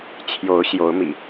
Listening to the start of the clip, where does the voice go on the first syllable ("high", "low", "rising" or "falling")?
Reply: rising